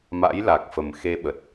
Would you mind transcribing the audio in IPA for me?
ma̰˧˥jla˨˩k̚fə˨˩m xe˧ɓə˨˩t̚

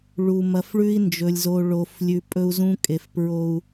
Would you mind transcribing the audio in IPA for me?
ɭu˨ mɐ˨fɭʉ˦i̯ nd͡ʒɵ˨lʲzo˨ ɭo˨f lʲʉ˨pʼɵ˦u̯zũ˦ kʼe˨fpɹo˦u̯

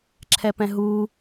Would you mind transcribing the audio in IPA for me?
ǁʰɛpɛ̃ɦu

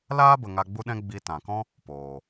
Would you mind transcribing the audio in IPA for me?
laː˦bə˨ ŋa˧ɡ͡bu˦ɗɛ̃˦ ɡ͡bi˧tã˨kɔ̃˦ | poː˨

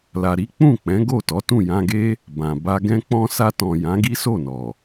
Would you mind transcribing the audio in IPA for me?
la˨ɾi˨˦k͡pũ˦˨ k͡pɛ̃˨˦ɡo˦˨tɔ˨˦ tũ˦˨jã˧ɡe˦ | bã˨ba˧ɡɛ̃˦k͡pɔ̃˦ sa˧tɔ̃˨ jã˨˦ɡi˦so˦˨nɔ˨

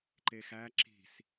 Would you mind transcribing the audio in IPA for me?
ǃexæ ǁi̤s

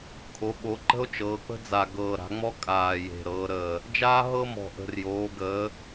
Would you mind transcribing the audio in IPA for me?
kʰo˩˧ɓo˩˧ǃə̤˦o̯ t͡ʃɤː˩˧k͡pə̤˦d͡za˨˩ ɡɤː˨˩ɾa̤˩˧ŋ͡mɔ˦ kʼaː˨˩ je̤˨˩ɾɤː˩˧ɾəː˨˩ | d͡ʒaː˦ɦɤ˦mɔ̤˨˩ʔə̤˨˩r joː˩˧ɡəː˩˧

